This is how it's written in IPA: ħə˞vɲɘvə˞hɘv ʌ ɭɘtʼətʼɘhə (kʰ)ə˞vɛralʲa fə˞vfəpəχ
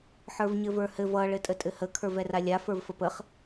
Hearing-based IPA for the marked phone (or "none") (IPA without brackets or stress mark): kʰ